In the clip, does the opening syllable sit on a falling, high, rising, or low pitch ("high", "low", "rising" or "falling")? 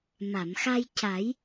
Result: low